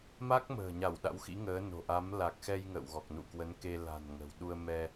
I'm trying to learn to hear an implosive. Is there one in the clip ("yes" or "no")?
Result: yes